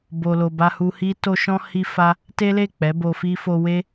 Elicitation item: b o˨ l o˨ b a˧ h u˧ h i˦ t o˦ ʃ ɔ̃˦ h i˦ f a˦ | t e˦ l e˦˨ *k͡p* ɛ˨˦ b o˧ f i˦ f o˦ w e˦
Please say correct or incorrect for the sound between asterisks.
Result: correct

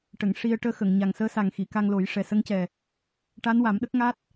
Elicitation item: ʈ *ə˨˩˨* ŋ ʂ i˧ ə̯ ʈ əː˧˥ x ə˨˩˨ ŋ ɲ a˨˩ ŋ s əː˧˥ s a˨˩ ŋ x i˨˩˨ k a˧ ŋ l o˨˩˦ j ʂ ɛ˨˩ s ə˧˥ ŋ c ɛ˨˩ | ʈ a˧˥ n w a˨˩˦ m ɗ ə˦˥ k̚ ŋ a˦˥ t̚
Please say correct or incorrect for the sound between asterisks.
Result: correct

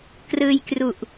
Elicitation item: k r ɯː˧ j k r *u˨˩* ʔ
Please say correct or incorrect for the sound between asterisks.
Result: correct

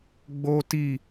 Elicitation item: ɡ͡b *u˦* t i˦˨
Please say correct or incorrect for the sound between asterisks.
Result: incorrect: o˦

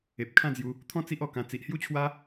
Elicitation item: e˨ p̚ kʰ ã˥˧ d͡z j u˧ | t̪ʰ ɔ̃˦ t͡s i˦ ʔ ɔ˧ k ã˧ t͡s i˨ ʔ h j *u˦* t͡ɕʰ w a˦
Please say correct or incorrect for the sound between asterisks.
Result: correct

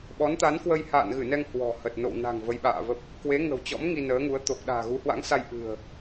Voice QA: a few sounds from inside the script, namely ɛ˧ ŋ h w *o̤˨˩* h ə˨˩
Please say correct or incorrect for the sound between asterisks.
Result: incorrect: ɔ̤˨˩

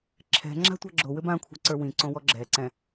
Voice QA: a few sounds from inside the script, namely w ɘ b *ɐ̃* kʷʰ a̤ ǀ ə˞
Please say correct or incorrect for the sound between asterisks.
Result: incorrect: ã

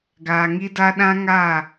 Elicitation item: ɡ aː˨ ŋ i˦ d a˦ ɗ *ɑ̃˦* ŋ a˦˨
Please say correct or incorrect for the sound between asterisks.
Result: incorrect: ã˦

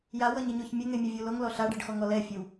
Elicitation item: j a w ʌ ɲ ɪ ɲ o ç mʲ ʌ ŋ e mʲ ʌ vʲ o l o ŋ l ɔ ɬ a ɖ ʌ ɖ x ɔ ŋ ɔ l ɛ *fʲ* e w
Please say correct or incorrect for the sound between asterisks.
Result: correct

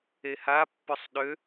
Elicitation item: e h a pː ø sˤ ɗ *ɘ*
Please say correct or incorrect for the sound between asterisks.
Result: incorrect: ø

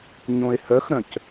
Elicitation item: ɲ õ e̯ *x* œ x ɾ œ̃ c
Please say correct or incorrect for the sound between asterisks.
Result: incorrect: h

